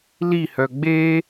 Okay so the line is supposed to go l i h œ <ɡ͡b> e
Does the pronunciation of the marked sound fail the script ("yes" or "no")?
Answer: no